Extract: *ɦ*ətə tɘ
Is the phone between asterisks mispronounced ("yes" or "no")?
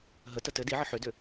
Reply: no